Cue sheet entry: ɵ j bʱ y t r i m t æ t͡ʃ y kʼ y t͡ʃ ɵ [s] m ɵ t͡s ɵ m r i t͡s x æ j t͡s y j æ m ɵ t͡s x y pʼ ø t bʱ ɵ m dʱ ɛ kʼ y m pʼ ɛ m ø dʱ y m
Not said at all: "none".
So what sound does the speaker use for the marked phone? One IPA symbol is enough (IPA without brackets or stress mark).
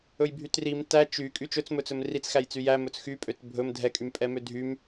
t͡s